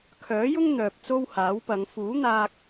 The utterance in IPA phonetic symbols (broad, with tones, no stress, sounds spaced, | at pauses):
kʰ œː˨˥ j ʊ˥ ŋ n̪ œː˨ p̚ t͡s o˥ w h aː˨˥ w p ɐ˨˧ ŋ f uː˨˥ n̪ aː˧ k̚